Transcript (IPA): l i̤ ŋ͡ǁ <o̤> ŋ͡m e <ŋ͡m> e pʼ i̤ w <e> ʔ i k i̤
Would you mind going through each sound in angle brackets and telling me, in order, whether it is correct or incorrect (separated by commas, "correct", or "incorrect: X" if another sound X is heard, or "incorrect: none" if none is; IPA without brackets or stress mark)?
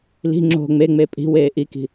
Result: correct, correct, incorrect: eː